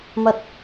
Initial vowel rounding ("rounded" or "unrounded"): unrounded